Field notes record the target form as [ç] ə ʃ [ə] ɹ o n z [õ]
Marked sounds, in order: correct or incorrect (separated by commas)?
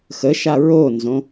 incorrect, incorrect, correct